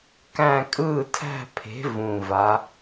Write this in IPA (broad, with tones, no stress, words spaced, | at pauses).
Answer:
kæ̃˥˧ kʼɯː˥˧tʰæ̤˥˧pʰe̤˨˥ vũ˧˩va˨˥